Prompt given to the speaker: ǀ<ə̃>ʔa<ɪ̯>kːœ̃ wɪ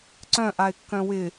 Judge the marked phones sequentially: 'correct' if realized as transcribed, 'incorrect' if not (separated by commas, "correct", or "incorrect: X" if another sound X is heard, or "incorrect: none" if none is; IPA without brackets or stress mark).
incorrect: œ̃, correct